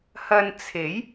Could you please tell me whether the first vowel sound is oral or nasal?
oral